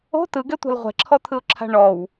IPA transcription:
o̤ t ɯ ɡ ɛ tʷ a̤ l ʁʷ ɛ̤ ǁʰ ɔ t̪ʰ ɯ ʊ̯ ǁʰ a̤ ɳ ɔ w

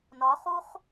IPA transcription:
n ɒ χ u χ

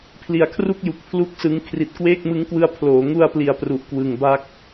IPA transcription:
pʰ l i˨˩ a̯ kʰ r u˥˩ k̚ j u˨˩ k̚ pʰ l u˥˩ k̚ s ɯ˦˥ ŋ kʰ r i˨˩ t̚ k w eː˥˩ k̚ m ɯ˦˥ ŋ k w ɯ˧ a̯ pʰ l oː˩˦ ŋ u˧ a̯ p l i˩˦ a̯ p r u˨˩ ʔ k w ɯ˨˩ ŋ b a˥˩ k̚

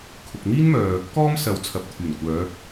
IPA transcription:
kʰ ʊ˨ k̚ n̪ iː˥ n m œː˨ | k ɔː˥ m s ɐ˨˧ w t͡sʰ ɐ˨ p̚ t̪ʰ yː˨˩ n kʷ œː˨˧

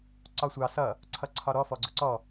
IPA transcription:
ǀ ɒ sʷ ɑ s ʌ | ǀʰ ʌ ǀʰ ɒ ɾ ɔ f ɔ ɡ͡ǀ ʊ ǀ ɔ

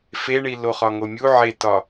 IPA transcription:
f e ɳ i l o χ ɒ ŋ o mʲ u ʕ e t ɒ

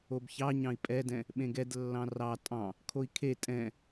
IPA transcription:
o b ç ɑ ɲ ɑ̃ i̯ pʼ ɛ d ɛ̃ | ɓ ẽ ɡ ɛ d lː ɑ̃ r ɑ tʼ ɑ̃ | kʰ o i̯ kʰ e tʼ ɛ̃

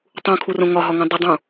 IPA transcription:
tˤ ũ kʰ u r õ ŋ ɒ ɦ ɒ ŋ ũ dˤ ə dˤ ũ

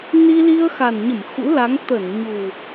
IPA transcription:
n i˧ l i˧ ə̯ x a˨˩ n ɲ ə˧˩ m x ṵ˧˥ l a˨˦ ŋ t̪ ə˧˩ n ɲ u˨˩

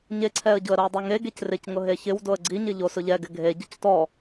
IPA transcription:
ɲ e ǀʰ ɛ ə̯ ɟ ʊ ə̯ ɾ o ə̯ dˤ ʊ ŋ e ɡ e c r ɪ c ŋ ʊ ɦ e ç ɪ w d o ə̯ ɡ͡ǀ i ɲ ɪ ʎ o s ʊ ʎ ɛ ɡ ɪ ɡʱ e ɟ ʊ c t ɔ

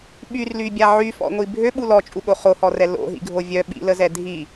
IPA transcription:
ɓ y r l y bʲ a ʕ y f ɔ̰ ŋʷ i bʱ ø ɓ u l ɔ t͡ʃʼ u ɠ o χ o h ɔ r ɛ l o̰ ɦ ḭ ɡʱ o vʲ œ ɓ ḭ l ə z ɛ dʱ i

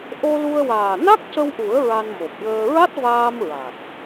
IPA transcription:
ʔ o˧ l u˧ ə̯ w aː˨˩ n a˦˥ k̚ c ə˧ w ʔ u˨˩˦ ə̯ ɹ a˧ n m o˨˩ p̚ j əː˧ ɹ a˦˥ t̚ v aː˧ m ɹ a˨˩ t̚

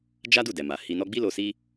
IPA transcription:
d͡ʒ a˦ d u˦˨ d ɛ˨ m a˨ h i˧ n ɔ˦ ɡ͡b i˦ l o˧ s i˦

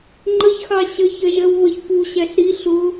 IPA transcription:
ŋ͡ǃ ə ç x ɑ ɕ ə ç ɜ ʒ ɜ w β ə ç p u ɕ æ ɬ ɾ i ɬ ʊ

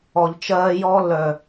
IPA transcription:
ɔ˨ ʎ t͡ʃ ɜː˦ j ɔː˦ lː œ˨

